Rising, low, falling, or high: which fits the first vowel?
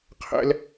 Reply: high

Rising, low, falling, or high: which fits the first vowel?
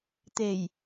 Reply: low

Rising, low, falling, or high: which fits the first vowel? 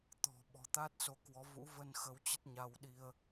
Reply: low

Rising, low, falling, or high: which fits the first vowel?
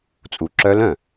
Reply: low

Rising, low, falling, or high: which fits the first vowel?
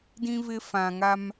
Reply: high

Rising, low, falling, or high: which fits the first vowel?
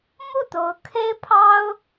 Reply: falling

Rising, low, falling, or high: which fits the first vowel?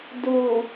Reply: low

